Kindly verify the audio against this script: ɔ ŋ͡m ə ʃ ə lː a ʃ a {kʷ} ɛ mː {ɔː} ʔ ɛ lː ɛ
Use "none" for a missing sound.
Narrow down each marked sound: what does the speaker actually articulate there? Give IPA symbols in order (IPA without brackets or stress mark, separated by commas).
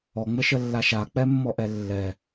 k͡p, ɔ